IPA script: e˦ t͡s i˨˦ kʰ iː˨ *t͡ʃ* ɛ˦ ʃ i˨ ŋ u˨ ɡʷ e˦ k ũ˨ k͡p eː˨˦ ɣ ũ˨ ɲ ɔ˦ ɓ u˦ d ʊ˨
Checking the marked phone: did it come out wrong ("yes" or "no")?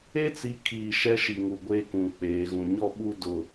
yes